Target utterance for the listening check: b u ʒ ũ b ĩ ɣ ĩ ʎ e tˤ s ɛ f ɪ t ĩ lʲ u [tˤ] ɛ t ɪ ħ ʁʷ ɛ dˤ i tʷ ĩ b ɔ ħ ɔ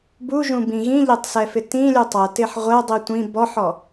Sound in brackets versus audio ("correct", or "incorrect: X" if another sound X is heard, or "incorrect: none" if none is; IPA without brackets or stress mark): correct